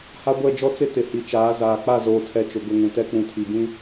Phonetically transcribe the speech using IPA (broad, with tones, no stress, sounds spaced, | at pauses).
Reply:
h a˦ ɡʷ ɛ˦˨ d͡ʒ ɔ˦ t͡s ɪ˦ t ɪ˨ h i˨ t͡ʃ aː˨˦ z aː˨ k͡p a˦˨ z oː˨ tʰ ɛ˨ t͡ʃ ʊ˨ ɡ ʊ˦˨ ŋ ũ˨ t ɛ˦ k͡p ũ˨ tʰ i˨ b ĩ˦